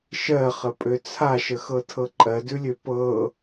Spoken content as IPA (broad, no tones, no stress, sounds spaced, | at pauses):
ʃ ɜ χ ə pʼ ø t͡sʰ a ʃ ə x ɤ tʰ ɤ ǃʼ ɜ d ʉ lʲ ø p ɤ